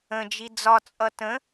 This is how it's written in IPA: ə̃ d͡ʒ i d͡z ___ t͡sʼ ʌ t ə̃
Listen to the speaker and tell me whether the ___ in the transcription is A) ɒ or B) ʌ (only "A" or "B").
A